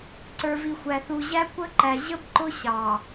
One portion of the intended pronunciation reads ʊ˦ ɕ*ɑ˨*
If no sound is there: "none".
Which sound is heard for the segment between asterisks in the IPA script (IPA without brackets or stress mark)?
ɑ˨